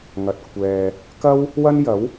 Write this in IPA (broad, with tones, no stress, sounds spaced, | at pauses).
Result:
ŋ ɐ˨ t̚ kʷʰ ɛː˨ | k ɐ˥ w | w ɐ˥ n j ɐ˨˥ w